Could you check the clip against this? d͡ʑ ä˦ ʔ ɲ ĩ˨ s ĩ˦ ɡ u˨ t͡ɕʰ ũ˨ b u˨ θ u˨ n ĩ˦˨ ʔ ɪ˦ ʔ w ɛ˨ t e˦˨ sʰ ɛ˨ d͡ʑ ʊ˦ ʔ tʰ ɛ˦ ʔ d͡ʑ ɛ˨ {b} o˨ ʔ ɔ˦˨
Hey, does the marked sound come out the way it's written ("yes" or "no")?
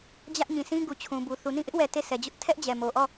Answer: no